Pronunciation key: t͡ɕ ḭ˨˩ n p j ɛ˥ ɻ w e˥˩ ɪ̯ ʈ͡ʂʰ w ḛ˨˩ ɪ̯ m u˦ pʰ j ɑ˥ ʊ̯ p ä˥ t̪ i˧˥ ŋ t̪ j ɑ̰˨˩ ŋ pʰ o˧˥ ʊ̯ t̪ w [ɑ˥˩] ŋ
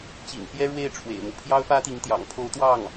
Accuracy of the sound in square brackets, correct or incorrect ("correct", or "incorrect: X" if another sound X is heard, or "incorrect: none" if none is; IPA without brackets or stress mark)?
correct